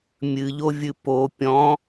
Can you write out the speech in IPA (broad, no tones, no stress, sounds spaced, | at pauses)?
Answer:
mʲ ɨ ʎ o vʲ ɨ p o pʲ ɔ̃